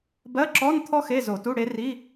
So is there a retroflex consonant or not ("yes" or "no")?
yes